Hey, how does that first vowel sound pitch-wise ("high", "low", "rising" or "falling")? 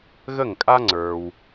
falling